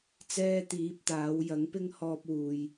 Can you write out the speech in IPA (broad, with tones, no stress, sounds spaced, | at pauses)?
t͡s ɛː˧ t̪ iː˨˥ p̚ t̪ aː˨˥ w j ɐ˨˥ ŋ p ɪ˥ ŋ h ɔː˧ p̚ w uː˨ j